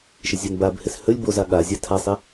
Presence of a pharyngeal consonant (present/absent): absent